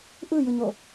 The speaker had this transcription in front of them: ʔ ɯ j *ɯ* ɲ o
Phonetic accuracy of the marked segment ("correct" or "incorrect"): correct